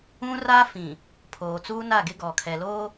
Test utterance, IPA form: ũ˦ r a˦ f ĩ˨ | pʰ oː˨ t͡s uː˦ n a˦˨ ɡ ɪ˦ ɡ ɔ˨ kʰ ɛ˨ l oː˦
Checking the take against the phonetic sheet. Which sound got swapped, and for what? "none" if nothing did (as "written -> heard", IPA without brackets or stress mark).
none